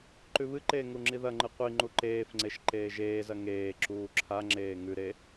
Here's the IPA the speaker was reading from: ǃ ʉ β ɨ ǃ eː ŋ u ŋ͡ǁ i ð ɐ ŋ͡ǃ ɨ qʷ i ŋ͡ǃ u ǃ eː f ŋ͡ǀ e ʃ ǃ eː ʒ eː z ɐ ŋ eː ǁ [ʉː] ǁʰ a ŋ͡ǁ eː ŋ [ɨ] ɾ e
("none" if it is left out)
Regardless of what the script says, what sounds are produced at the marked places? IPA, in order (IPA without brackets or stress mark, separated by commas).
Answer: uː, ʉ